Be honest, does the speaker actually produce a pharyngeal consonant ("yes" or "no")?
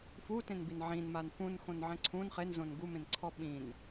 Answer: yes